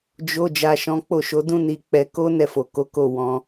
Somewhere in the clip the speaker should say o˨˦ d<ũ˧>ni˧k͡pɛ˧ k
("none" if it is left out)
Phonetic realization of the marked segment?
ũ˦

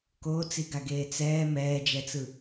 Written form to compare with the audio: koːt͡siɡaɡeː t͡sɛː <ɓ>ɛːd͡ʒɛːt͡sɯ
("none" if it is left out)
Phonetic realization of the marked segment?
m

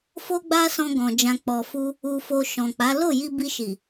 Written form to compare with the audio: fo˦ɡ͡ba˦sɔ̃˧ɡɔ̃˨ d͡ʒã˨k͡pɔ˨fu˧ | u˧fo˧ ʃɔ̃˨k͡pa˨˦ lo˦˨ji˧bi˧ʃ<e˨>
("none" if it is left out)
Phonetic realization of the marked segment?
i˨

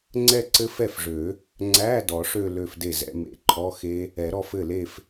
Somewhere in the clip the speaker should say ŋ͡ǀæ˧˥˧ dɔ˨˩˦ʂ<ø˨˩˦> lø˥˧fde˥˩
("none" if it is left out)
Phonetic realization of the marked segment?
ø˥˧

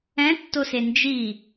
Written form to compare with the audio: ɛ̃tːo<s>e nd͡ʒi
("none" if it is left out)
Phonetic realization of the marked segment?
s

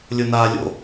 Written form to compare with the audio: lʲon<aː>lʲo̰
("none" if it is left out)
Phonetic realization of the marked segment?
aː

